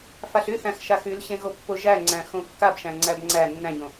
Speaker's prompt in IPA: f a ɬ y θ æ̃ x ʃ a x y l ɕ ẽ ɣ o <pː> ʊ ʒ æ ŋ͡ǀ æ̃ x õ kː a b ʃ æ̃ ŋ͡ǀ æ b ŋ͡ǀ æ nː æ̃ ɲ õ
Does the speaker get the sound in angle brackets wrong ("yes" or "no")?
no